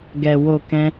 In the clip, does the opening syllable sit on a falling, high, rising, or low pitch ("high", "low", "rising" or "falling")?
low